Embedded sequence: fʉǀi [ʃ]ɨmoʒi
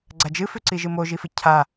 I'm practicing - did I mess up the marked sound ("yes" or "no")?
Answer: yes